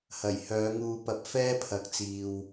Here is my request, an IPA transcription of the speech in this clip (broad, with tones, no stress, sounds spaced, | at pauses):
h ɐ˨˩ j h œː˨˧ ŋ uː˧ p ɐ˧ p̚ f ɛː˥ pʰ ɐ˨˥ k̚ t͡s iː˨ w